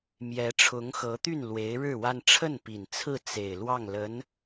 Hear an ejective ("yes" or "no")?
no